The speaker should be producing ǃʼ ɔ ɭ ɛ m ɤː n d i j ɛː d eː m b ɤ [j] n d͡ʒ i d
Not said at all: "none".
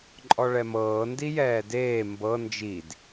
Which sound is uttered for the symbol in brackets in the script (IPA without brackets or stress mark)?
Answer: none